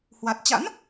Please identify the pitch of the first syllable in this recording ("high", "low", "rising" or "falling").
low